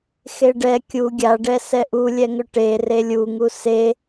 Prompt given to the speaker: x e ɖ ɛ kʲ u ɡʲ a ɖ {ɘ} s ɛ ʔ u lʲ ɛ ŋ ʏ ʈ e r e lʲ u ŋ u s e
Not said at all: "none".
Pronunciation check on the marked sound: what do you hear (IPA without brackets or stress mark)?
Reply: ɛ